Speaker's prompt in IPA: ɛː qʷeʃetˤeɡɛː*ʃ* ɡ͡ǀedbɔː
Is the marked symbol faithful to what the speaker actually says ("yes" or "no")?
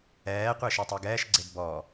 yes